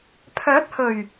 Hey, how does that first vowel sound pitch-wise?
rising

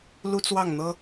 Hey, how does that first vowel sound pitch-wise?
high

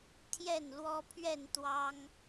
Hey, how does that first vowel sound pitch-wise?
falling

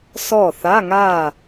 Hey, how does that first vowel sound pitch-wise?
falling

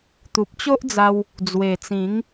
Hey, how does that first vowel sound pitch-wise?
low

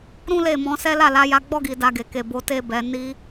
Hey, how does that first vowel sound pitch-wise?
high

